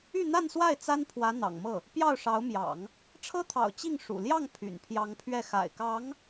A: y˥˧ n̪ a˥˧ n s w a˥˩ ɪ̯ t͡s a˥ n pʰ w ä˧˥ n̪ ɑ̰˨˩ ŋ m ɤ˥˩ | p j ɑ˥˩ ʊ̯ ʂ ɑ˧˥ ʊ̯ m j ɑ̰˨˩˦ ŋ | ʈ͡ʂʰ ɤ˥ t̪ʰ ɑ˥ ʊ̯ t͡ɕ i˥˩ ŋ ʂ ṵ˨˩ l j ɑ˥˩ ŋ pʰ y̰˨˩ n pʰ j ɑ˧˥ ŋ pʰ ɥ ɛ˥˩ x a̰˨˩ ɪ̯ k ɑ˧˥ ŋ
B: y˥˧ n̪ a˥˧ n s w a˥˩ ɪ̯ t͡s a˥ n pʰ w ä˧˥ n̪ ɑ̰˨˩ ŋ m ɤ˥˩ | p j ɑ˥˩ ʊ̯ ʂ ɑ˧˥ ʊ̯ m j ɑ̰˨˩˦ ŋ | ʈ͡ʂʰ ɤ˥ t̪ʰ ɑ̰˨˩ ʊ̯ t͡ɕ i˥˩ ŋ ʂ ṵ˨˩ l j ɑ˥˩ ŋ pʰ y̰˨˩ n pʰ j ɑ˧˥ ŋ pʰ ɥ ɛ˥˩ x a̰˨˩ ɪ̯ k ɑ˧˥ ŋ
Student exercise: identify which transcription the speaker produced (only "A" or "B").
B